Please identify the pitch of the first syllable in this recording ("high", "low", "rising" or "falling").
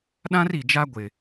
high